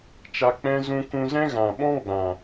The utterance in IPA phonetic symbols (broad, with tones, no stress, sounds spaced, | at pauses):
t͡ʃ a˧ k͡p ɛ̃˦ z ũ˧ k ũ˧ z ɛ̃˦ ɣ ã˨ ɓ ɔ̃˦ ɡ͡b ã˨